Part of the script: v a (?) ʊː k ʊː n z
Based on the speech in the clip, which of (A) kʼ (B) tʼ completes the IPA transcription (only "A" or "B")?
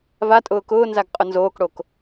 B